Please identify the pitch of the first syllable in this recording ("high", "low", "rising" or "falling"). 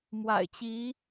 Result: low